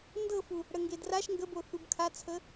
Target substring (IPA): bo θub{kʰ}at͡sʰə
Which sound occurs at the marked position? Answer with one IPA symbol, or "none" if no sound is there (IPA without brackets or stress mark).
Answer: kʰ